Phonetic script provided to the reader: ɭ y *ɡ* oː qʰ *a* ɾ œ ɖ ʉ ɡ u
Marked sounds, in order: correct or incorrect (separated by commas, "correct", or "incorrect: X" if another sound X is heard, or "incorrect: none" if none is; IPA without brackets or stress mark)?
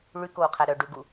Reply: incorrect: k, incorrect: æ